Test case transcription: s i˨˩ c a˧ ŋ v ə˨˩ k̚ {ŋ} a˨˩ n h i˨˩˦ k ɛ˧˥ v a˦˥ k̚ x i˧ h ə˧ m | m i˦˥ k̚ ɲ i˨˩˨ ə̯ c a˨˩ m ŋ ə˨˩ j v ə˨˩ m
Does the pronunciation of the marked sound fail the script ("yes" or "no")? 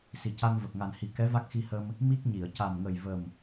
no